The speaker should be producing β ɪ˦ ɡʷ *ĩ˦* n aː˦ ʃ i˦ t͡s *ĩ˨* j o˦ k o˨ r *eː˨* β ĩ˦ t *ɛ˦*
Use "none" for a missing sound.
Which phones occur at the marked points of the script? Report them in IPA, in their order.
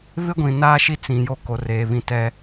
ĩ˨, ĩ˨, eː˨, ɛ˦

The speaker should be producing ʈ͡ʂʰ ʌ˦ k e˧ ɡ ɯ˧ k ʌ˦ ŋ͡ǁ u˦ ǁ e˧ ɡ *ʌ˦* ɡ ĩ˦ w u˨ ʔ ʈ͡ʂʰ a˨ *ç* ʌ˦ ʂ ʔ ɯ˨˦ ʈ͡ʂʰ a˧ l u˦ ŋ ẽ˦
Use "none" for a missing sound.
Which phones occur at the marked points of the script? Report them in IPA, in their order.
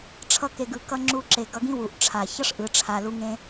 ʌ˧, ç

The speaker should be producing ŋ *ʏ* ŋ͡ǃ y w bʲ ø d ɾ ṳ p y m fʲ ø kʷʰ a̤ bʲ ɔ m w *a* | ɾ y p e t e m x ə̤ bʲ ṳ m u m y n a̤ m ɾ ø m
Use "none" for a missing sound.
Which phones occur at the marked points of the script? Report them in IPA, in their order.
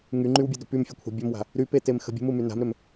y, a̤

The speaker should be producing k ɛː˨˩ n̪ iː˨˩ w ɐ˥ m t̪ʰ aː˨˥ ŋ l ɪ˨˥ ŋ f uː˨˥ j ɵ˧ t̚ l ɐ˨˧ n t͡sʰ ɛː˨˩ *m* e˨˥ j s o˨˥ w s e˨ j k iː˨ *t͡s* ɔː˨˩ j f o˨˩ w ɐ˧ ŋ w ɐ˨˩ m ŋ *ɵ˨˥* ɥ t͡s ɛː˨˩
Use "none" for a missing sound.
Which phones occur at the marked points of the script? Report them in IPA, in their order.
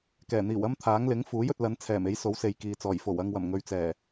m, t͡s, ɵ˨

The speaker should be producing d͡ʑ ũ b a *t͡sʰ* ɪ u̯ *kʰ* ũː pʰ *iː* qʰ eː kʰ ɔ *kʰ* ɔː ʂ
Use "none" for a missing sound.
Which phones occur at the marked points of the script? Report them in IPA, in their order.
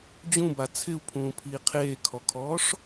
t͡sʰ, pʰ, iː, kʰ

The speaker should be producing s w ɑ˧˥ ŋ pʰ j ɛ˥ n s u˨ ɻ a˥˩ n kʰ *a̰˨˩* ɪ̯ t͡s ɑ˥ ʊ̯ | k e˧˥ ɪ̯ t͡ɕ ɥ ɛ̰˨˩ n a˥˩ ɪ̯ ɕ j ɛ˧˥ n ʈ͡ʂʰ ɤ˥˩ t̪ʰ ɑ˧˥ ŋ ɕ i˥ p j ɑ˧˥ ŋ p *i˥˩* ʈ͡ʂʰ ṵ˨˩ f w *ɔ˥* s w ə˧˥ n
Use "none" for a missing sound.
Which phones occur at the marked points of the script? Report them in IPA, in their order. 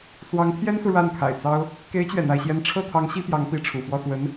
a̰˨˩, i˧˥, ɔ˥˩

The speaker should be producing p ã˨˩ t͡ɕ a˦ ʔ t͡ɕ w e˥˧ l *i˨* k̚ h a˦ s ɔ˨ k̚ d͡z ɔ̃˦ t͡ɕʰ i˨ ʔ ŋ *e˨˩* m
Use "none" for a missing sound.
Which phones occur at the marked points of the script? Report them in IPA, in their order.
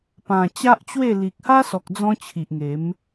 i˨, e˨˦

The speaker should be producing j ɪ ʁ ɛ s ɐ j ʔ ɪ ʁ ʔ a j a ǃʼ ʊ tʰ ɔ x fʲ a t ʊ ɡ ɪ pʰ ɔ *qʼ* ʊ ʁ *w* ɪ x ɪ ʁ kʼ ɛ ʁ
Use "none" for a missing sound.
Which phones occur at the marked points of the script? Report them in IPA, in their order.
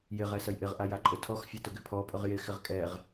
pʼ, j

